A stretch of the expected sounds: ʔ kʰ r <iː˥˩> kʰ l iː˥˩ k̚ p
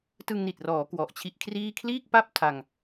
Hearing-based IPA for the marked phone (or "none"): iː˥˩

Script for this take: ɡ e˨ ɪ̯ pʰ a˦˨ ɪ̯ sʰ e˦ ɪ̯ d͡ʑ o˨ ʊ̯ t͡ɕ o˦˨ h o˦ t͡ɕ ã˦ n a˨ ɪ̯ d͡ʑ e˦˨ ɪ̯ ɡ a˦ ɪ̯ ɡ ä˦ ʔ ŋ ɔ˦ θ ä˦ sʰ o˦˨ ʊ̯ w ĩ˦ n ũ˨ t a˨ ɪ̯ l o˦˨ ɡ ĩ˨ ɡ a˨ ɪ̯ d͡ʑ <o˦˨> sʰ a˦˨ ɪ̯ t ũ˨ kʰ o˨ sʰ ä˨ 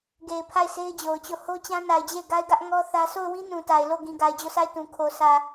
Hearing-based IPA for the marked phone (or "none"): o˦˨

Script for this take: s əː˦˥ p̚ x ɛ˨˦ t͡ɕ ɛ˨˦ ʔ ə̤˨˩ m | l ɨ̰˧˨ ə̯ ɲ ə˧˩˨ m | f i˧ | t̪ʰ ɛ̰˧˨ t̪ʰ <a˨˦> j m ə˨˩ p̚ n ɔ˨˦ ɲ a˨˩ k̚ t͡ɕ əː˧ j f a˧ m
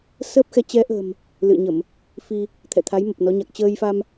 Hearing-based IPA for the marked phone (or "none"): a˨˦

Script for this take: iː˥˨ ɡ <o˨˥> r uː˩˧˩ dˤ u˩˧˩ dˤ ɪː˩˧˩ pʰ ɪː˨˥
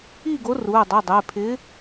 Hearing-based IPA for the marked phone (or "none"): o˨˥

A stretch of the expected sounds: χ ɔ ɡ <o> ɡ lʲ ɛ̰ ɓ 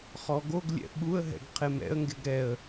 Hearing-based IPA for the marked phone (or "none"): o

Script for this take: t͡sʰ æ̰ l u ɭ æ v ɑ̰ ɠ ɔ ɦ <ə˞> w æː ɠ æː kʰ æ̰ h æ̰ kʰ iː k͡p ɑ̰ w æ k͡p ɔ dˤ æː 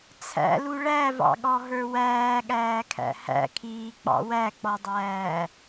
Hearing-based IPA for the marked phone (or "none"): ə˞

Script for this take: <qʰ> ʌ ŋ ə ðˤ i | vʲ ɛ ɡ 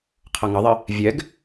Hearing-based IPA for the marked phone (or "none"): qʰ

